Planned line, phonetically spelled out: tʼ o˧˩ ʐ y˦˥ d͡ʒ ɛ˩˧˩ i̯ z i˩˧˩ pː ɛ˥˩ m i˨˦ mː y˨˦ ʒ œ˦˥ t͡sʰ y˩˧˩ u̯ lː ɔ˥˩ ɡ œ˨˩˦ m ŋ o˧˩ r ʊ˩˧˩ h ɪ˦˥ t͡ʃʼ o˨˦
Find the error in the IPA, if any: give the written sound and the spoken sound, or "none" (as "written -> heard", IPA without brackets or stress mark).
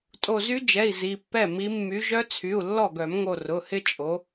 ʐ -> z